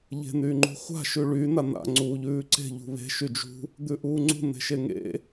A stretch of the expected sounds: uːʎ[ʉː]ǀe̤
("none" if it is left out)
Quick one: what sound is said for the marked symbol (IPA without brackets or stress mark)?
ʉː